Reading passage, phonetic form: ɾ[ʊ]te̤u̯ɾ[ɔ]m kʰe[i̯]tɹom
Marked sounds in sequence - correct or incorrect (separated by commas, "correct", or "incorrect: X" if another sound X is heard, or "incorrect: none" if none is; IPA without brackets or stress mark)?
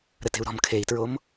incorrect: ə, incorrect: ɔ̤, correct